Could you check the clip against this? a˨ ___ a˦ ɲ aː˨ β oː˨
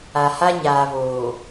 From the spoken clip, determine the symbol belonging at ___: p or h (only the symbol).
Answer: h